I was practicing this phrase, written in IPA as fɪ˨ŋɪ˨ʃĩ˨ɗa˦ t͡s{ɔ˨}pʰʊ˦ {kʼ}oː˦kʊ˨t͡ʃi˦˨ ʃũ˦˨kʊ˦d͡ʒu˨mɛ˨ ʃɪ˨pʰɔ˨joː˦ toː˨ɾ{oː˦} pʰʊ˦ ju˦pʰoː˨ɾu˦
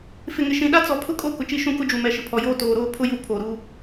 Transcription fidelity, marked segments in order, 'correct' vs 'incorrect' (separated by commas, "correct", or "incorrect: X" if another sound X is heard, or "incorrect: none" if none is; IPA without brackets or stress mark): correct, correct, correct